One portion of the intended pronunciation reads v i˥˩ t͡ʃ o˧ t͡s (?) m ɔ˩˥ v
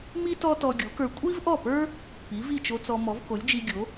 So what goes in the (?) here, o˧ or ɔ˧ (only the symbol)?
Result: ɔ˧